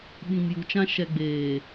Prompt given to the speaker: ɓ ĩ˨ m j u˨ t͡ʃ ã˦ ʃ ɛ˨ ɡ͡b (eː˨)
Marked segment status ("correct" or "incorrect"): correct